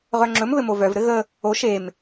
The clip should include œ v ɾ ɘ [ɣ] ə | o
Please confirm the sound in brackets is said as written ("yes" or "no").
yes